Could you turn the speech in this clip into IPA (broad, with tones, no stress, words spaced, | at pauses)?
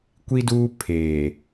kʷi˦duː˦ pʰeː˨